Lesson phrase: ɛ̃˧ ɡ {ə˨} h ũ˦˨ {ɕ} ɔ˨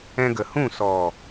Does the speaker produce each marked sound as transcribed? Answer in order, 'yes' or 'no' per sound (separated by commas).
yes, no